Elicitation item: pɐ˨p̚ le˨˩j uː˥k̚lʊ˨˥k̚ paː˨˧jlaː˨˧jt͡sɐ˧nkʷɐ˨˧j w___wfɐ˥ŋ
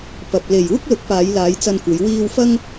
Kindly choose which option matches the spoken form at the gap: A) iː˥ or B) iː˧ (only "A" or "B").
B